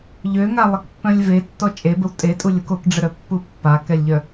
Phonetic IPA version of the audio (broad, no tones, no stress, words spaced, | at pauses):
ʎøŋalˠəkpːœ̃lʲ vetːɔ t͡ʃʼebəw tʼetʼulʲok okɖ͡ʐəɾœpːu pːakɛlʲʎœ